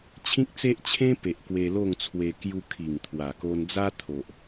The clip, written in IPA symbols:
t͡ɕʰĩ˦k̚t͡se˦ʔ t͡ɕʰẽ˦pe˨ʔ kwe˧lo˥˧ŋt͡sʰwe˧ kju˧kʰi˨˩ŋ t̪ʰwa˨˩ko˧n d͡za˦t̪ʰo˨ʔ

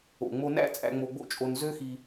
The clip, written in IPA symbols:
o̰˨ŋ͡mo˧ næ̰˦ t͡sʼæ̰˧ŋ͡mo˧ɡ͡bo̰˦t͡ʃʼo˧n zø˦xi˧

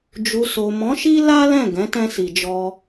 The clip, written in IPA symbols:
d͡ʒu˨so˨mɔ̃˨˦ʃi˦ la˦lɛ̃˦˨ ɡɛ̃˨˦tɛ̃˧si˨d͡ʒɔ˧

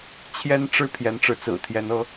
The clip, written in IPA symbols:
t͡ɕʰjɛ˥nʈ͡ʂɻ̩˥ pʰjɛ˧˥nʈ͡ʂɻ̩˧˥t͡sɹ̩˨˩t̪ʰjɛ˧˥n ɤ˧˥

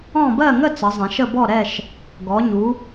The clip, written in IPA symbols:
ɔ̃˦˨ bɜ˦˨ŋə˦˨ t͡sə˩˧zˤɛ̃˩˧ʃə˦˨ bɔ˦˨ɾɛ˦˨ʃ | ɡɔ˩˧ɲu˩˧

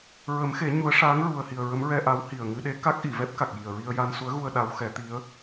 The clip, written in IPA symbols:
ɹə˨˩˦mxe˨˩˦ ɲu˧˥ə̯ ʂaː˧˥ŋ ɹu˨˩ə̯hi˨˩ə̯ ɹə˧˥mɹɛ˧ʔa˧˥whi˨˩ə̯ ŋɨ˧ɗe˧˥ ka˦˥k̚ʔi˨˩˨vɛ˦˥p̚ ka˨˩k̚ ji˨˩ə̯ɹi˧ə̯ ja˧nsu˧˥ə̯ɣu˧ə̯ ɗa˧˥wxɛ˨˩˦t̪i˧˥ə̯

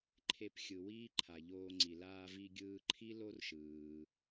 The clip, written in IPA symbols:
ǃʰe˧pxʲɯ˩ wiː˥ǃʰa˩ʎoː˧ŋ͡ǀi˩ laː˧vi˧ ɡʲɯː˧ǃʰi˥ lo˥rʃɯː˩

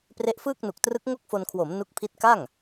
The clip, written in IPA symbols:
pre˦˥ʔfɯː˥˩k̚nu˨˩k̚ trɯ˦˥k̚ŋo˥˩k̚fo˧nkʰwo˩˦m nu˦˥k̚pʰi˦˥t̚ka˥˩ŋ

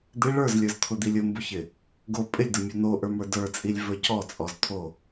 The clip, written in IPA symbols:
d̪ɪ ɭə˞zlʲə˞zt̪ʰʊd̪ilʲ ʊmbʊçɪ | ɡo pʼɪlʲdʊmʲɔ n̪oʔə˞mə˞ də˞t͡sʼilʲvə˞ cɔt͡sʼɔzt̪ʰo

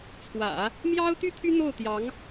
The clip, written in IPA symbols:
t͡sʰwä̰˨˩˦ | mjɑ˥ʊ̯ t̪y˥t̪ʰy˥ n̪o˥˩ʊ̯t̪jɑ˧˥ŋ

